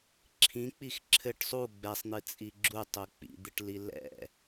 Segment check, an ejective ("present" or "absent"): present